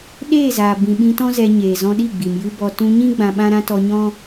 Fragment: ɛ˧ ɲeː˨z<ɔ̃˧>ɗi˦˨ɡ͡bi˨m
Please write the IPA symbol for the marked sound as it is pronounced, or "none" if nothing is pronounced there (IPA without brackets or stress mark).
ɔ̃˧